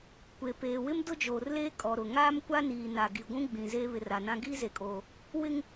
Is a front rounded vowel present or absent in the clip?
absent